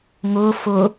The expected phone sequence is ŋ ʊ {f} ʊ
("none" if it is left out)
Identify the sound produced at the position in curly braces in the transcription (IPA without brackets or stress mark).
f